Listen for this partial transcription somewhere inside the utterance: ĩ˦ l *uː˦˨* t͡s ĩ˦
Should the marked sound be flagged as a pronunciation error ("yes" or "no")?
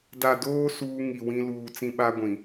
yes